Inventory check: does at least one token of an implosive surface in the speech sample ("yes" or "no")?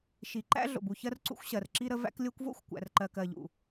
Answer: no